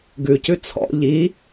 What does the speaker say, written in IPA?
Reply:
ɡ ʉ c ʉ t͡sʰ ɔ̰ ʎ i

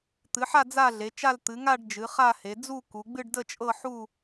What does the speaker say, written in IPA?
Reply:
t̪ ɨ˨˦ ħ a˥˧ d͡z a˥˧ ɮ e˨˦ t͡ʃ a˥˧ l t̪ ɨ˨˦ ŋ a˥˧ ɖ d͡ʒ ɨ˨˦ χ a˥˧ h e˨˦ d͡z u˥˧ k u˨˦ ɡ͡b ɨ˥˧ ɖ d ə˥˧ t͡ʃʼ ɤ˥˧ ħ u˥˧

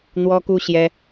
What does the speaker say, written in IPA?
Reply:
n̪ w ɔ˥ k u˥ ɕ j ɛ˥

